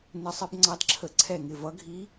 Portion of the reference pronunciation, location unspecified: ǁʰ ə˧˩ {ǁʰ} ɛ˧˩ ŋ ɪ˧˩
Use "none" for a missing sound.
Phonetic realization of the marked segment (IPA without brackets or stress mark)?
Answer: ǀʰ